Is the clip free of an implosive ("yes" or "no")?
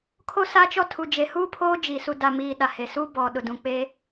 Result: no